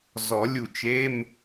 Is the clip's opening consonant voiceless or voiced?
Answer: voiced